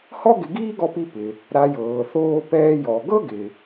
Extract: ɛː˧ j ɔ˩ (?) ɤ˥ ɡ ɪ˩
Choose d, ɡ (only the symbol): ɡ